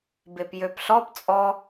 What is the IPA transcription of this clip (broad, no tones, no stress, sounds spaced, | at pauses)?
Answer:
b e p j ø p ɬ ɔ p t͡sʼ ɔ